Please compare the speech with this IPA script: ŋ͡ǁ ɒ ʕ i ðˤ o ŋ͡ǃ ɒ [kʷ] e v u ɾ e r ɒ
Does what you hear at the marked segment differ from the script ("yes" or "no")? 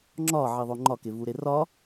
yes